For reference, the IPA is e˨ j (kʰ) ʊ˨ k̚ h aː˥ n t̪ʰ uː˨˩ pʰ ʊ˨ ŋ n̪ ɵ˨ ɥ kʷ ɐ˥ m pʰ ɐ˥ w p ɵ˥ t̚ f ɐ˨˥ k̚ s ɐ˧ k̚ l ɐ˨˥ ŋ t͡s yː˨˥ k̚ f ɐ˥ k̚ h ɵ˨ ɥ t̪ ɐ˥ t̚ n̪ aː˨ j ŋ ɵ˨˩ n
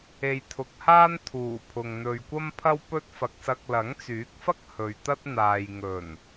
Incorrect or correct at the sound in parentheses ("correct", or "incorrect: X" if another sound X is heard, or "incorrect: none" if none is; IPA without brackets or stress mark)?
incorrect: t̪ʰ